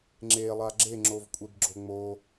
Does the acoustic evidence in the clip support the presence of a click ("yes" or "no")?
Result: yes